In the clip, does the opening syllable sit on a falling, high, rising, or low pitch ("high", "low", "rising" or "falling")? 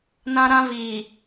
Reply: high